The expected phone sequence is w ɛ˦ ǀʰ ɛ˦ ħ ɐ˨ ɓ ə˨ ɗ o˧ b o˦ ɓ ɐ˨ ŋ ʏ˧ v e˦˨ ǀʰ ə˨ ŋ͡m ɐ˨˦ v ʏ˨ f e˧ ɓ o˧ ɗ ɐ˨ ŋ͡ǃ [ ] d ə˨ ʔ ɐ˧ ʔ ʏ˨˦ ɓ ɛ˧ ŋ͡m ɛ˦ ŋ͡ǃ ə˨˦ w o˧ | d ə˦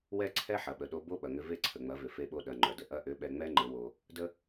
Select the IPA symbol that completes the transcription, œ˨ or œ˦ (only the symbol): œ˨